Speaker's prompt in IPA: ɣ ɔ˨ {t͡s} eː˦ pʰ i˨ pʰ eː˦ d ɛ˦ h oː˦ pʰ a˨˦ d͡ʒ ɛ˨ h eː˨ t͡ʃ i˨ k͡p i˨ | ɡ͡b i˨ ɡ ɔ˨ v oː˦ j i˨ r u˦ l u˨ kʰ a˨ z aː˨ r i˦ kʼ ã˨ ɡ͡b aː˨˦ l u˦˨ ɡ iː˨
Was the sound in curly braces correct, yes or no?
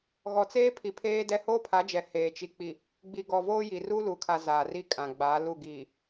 yes